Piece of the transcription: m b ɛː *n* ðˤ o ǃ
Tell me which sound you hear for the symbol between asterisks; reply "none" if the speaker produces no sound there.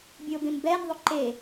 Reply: n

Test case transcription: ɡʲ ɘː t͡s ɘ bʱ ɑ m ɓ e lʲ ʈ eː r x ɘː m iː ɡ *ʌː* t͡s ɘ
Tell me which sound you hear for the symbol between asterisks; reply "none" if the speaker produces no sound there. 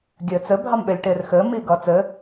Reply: ʌː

